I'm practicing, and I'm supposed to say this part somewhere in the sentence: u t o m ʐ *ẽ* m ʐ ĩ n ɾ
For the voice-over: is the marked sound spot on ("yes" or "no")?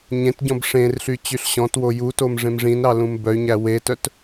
yes